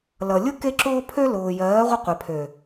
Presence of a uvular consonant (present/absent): present